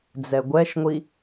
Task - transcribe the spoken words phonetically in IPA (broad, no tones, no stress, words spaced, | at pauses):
d͡zɛɡʷɛʃŋʷi